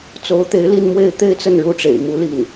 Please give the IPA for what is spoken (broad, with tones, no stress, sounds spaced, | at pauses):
t͡s o˧˥ ʊ̯ t̪ e˧˥ ɪ̯ l i˥˧ n m w e˥˧ ɪ̯ t̪ e˥˧ ɪ̯ t͡s ə˥˩ n ɻ u˥ ʈ͡ʂ ḛ˨˩ ɪ̯ m u˥ l i˥˩ n